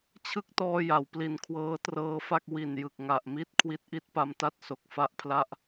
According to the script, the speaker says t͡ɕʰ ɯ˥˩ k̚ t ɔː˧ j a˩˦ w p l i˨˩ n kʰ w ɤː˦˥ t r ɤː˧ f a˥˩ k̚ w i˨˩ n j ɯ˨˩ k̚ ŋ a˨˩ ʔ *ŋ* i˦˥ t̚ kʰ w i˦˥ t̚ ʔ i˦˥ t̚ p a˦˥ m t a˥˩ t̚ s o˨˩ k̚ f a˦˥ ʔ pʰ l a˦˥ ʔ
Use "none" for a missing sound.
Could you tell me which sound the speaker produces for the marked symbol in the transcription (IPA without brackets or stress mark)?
m